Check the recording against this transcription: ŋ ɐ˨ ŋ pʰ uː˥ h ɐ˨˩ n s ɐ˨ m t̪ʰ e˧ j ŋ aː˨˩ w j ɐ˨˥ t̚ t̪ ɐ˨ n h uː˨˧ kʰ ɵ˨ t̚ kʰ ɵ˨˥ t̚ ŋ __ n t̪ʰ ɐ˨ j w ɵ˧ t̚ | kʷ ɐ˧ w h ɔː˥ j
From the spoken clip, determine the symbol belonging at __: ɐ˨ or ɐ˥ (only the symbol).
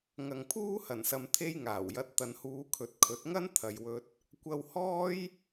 ɐ˥